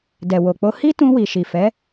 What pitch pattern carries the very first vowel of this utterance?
low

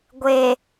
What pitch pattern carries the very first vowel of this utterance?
low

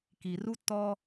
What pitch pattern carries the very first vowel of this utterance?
low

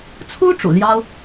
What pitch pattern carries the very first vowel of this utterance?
high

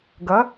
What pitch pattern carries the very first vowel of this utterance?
rising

